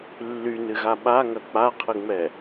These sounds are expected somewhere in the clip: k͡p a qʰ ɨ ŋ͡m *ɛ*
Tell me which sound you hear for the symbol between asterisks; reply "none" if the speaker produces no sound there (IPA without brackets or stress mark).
ɛ